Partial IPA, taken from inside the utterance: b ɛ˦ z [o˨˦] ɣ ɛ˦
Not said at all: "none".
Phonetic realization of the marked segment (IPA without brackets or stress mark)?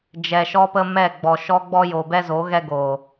o˨˦